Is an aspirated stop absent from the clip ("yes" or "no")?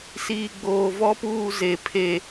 no